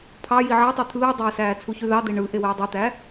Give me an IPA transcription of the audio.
pʰ ɑ j i ʕ ɑ tˤ ø t̪ʰ ɯː dˤ eː s æː t͡sʰ u ç y ð ɑ d̪ e ɳ ɯ ʔ e w eː dˤ y t̪ æ

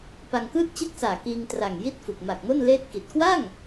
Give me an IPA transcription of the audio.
p a˧ ŋ k ɯː˥˩ t̚ t͡ɕ ɯ˥˩ k̚ s aː˨˩ k iː˧ ŋ t r a˨˩ ŋ j i˥˩ t̚ f u˨˩ k̚ m a˨˩ k̚ m o˥˩ n l eː˥˩ t̚ k i˨˩ t̚ k w a˥˩ ŋ

